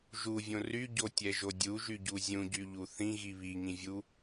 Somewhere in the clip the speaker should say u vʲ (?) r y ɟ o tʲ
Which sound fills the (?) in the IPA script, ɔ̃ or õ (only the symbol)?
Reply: õ